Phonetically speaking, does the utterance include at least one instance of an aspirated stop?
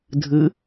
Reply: no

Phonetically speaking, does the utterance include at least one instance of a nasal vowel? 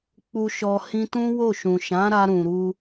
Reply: yes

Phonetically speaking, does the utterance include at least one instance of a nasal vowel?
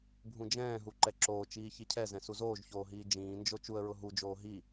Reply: yes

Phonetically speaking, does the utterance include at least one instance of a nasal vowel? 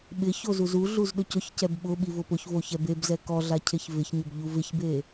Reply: no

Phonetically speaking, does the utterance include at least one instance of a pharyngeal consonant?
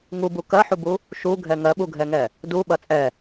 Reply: yes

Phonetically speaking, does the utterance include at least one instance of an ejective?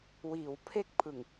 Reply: no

